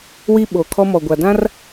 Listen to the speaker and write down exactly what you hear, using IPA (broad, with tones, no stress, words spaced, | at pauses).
wi˦ɓoː˨ kʰɔ˦mɔ˨ɡʷa˨ dã˦r